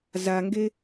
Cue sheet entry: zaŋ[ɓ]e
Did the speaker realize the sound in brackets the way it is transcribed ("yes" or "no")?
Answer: no